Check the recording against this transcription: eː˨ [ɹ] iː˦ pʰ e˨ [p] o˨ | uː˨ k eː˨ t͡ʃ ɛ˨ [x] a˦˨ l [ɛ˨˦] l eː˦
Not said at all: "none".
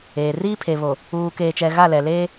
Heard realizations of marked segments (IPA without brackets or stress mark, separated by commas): r, β, ɣ, ɛ˨